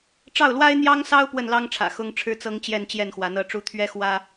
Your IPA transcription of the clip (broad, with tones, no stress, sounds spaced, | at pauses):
ʈ͡ʂ ɑ˥˩ ʊ̯ l w a˥ ɪ̯ n̪ j ɑ˥ ŋ s ɑ˥ ʊ̯ p w ə˥˩ n l ɑ˥ ŋ ʈ͡ʂʰ ä̰˨˩ x ʊ˥ ŋ ʈ͡ʂʰ ɻ̩˥ t͡s ɤ˥ ŋ t͡ɕ j ɛ˥˧ n t͡ɕ j ɛ˥˩ n x w a˧˥ n ɤ˥˩ ʈ͡ʂ u˥ t̪ʰ ɥ ɛ˥ x w ä˥